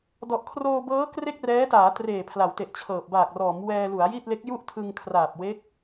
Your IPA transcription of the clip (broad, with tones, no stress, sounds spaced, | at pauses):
d ɔ˨˩ ʔ kʰ r oː˧ b ɤː˦˥ k r e˥˩ k̚ r ɛː˦˥ t aː˩˦ t r eː˨˩ pʰ l a˩˦ w t e˨˩ ʔ t͡ɕʰ ɤː˨˩ p̚ b aː˨˩ k̚ r ɔː˩˦ m w ɛː˧ l u˩˦ a̯ j i˥˩ t̚ l e˦˥ k̚ j u˥˩ ʔ tʰ ɯ˧ ŋ kʰ r aː˨˩ p̚ w e˦˥ k̚